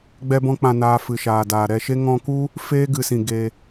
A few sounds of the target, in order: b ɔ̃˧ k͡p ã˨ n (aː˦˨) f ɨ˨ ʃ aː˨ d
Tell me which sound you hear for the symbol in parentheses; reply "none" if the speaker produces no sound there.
aː˨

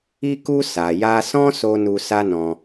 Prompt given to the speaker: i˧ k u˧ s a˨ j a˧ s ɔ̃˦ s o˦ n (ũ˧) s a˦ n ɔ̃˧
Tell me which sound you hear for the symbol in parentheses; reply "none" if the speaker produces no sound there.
u˧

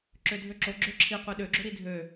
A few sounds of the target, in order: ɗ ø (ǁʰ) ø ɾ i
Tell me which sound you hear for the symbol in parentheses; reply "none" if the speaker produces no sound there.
ɡ͡ǁ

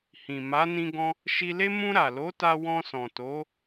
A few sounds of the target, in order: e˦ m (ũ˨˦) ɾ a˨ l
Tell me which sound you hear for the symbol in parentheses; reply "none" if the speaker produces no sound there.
ũ˧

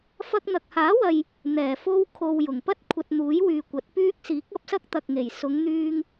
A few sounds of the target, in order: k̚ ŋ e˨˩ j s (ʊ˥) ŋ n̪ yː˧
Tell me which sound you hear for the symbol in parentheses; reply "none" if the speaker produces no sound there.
ʊ˨˧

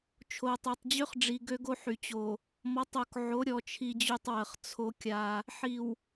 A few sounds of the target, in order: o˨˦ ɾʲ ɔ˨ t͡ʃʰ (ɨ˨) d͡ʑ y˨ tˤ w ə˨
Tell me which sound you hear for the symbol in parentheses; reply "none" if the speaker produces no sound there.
i˨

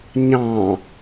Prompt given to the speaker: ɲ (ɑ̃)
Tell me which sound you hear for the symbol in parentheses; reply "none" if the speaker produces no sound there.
ɑ̃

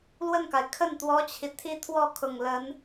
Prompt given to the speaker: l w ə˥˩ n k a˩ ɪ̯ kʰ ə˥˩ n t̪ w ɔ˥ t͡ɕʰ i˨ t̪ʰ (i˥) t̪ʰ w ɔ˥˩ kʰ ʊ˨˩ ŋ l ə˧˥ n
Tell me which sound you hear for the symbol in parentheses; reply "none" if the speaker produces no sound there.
i˥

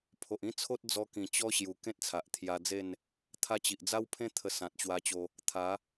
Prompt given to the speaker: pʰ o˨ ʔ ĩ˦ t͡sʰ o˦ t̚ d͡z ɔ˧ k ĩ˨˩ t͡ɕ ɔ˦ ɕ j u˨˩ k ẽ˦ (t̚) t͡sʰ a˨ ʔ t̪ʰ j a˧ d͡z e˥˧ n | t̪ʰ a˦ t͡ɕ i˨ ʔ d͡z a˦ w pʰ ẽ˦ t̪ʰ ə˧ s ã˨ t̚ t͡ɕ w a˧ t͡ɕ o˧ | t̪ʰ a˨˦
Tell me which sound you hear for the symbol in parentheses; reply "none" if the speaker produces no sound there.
t̚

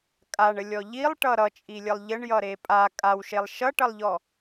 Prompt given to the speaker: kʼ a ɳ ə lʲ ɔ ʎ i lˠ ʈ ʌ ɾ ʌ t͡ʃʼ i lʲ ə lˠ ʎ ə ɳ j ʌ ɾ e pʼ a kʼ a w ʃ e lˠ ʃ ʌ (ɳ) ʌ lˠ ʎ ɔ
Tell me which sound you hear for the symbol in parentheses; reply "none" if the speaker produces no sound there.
ʈ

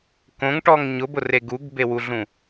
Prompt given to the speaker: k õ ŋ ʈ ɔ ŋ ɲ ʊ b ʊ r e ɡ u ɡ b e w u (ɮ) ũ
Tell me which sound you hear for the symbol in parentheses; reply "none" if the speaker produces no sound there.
ɮ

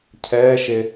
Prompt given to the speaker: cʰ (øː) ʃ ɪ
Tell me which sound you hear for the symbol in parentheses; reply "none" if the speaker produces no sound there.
ɛː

